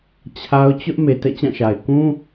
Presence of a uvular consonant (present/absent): absent